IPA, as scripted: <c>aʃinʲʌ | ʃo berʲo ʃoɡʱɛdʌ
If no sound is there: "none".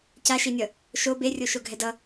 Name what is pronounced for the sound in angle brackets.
c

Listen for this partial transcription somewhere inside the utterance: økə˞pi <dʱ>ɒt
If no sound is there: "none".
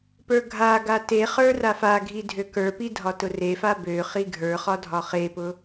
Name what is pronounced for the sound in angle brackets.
dʱ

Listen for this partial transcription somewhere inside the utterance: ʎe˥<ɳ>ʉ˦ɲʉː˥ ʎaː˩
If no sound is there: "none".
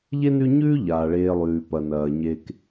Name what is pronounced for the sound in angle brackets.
n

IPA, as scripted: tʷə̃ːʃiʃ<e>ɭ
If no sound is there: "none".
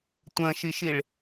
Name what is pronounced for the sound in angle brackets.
i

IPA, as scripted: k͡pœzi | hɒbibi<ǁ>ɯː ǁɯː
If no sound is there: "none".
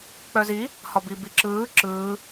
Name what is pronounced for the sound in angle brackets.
ǁ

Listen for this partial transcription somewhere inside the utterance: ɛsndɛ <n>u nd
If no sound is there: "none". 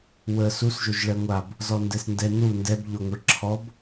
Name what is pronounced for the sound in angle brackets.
n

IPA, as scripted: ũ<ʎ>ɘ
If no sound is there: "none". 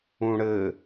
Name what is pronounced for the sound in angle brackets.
ɽ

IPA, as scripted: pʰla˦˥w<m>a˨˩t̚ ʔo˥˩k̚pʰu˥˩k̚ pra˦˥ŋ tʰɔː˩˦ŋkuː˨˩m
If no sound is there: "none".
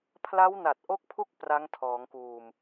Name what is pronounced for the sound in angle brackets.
n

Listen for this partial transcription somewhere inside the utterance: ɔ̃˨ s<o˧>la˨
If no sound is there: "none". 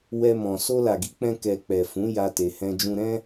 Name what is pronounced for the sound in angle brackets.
o˧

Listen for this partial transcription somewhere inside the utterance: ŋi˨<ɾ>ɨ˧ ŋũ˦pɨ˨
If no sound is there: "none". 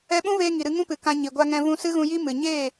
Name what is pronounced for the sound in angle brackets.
ɾ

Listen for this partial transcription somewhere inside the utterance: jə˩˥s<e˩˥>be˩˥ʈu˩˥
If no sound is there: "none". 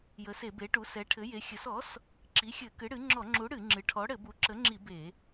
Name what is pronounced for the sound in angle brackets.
e˧˩˧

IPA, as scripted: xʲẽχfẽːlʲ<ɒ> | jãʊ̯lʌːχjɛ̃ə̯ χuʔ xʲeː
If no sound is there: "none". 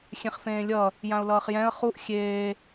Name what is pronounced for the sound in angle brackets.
ʌ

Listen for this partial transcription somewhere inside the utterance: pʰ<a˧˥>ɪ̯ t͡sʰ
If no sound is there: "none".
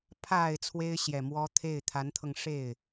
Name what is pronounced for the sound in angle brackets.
a˨˩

